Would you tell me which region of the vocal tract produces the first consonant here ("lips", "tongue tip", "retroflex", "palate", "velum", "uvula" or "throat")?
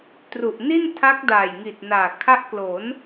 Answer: tongue tip